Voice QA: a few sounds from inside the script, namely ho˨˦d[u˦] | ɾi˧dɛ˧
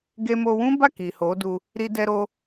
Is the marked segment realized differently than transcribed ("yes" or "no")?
yes